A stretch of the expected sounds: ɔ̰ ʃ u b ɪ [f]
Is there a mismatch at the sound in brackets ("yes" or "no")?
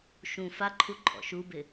yes